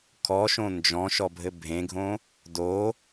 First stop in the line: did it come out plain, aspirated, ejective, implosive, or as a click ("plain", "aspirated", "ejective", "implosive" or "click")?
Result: aspirated